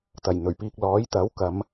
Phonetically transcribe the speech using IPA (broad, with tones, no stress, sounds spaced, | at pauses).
t̪ ɐ˨˩ j n̪ ɵ˨˩ ɥ p iː˨ k̚ l ɔː˨˥ j t̪ ɐ˨˥ w k ɐ˨˧ m